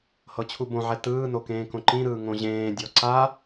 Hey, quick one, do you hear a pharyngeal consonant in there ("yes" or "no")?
yes